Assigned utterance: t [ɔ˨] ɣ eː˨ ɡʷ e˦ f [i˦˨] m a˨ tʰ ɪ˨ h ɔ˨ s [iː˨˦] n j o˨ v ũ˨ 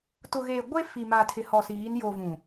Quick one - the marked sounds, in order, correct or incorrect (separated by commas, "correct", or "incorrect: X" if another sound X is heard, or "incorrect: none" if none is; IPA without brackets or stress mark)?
incorrect: ʊ˨, incorrect: i˨, correct